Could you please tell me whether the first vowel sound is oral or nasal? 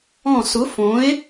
nasal